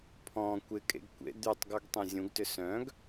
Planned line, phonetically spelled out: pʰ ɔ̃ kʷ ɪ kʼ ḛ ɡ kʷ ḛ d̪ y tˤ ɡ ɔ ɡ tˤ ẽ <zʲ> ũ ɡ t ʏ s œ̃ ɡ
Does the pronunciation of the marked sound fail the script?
no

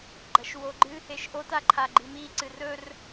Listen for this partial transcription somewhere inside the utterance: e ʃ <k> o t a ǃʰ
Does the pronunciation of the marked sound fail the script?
yes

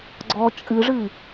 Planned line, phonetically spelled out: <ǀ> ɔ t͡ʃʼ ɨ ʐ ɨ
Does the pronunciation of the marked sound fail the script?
yes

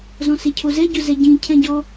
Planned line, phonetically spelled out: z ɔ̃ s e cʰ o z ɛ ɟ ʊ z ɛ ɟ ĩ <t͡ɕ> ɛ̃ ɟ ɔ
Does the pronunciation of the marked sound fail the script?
yes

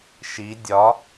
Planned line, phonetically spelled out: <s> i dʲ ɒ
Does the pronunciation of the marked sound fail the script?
yes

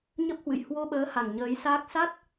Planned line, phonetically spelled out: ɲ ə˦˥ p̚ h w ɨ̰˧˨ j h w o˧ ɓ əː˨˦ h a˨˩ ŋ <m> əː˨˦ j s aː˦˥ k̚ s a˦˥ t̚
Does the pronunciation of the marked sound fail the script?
yes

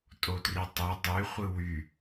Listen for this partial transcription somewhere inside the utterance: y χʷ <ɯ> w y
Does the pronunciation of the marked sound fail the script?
no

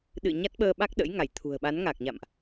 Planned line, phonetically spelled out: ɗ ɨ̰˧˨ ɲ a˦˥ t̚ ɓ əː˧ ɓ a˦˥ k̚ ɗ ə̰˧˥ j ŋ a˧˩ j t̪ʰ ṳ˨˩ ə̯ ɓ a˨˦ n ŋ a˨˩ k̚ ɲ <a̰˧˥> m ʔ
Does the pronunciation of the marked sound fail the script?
yes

